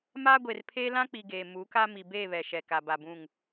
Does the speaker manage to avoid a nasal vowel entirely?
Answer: no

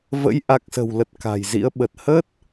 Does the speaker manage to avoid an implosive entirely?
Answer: no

